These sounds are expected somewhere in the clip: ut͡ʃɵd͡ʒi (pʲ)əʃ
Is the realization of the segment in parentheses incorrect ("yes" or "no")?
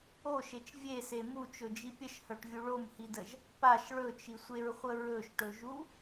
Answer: no